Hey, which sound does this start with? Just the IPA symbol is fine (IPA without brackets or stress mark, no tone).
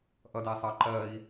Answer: ʔ